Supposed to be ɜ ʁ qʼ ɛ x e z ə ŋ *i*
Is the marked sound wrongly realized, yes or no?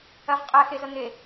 yes